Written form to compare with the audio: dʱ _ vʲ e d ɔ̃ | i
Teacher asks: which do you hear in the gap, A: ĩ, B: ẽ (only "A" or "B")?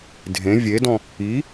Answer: B